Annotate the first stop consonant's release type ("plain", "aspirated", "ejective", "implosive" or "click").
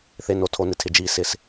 aspirated